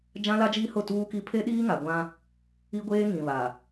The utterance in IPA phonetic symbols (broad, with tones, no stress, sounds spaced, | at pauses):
d͡ʒ ã˦ l a˦ d͡ʒ iː˦ h ʊ˦˨ t uː˦ k i˦ pʰ e˦ ɗ iː˦ ŋ a˨ ɡʷ ã˦ | i˦ ɡʷ eː˦ ŋ ĩ˨ β a˨